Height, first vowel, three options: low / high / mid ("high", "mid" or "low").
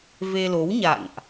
mid